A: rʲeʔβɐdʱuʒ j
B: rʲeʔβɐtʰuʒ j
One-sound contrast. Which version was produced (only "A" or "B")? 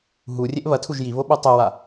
B